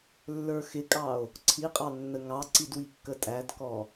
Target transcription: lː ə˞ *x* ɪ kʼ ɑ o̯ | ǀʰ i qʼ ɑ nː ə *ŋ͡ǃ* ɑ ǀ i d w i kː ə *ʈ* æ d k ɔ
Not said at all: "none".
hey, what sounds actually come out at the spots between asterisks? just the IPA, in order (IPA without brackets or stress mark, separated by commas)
x, ŋ, tʼ